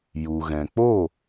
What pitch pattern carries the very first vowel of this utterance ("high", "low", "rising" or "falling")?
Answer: low